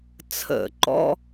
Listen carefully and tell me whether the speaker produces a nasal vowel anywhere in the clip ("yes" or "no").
no